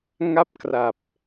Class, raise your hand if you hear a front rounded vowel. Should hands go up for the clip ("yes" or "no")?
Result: no